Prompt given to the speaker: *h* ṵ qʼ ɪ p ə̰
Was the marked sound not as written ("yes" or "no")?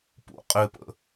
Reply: yes